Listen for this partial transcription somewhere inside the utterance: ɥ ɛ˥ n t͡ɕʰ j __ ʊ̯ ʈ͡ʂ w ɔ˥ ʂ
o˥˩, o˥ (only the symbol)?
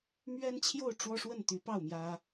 o˥˩